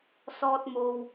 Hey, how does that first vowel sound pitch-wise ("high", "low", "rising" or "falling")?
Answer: high